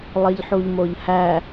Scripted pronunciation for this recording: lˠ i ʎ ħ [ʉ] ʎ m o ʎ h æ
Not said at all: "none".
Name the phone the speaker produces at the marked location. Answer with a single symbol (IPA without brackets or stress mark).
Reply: u